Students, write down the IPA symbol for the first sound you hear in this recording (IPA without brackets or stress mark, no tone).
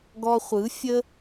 ɡ